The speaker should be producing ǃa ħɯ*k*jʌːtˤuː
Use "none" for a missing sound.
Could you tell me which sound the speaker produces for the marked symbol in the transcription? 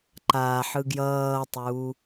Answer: ɡ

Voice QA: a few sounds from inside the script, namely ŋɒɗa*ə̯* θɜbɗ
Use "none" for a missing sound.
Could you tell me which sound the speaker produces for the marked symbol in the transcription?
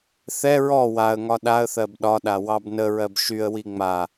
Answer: ə̯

